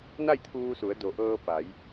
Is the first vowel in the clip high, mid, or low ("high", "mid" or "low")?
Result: low